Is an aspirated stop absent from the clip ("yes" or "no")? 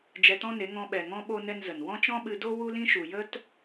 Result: yes